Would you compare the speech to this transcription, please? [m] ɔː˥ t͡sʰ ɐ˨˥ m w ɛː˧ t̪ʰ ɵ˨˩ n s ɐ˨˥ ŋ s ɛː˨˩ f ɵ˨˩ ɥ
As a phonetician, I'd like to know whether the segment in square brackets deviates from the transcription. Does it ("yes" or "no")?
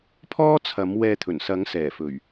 yes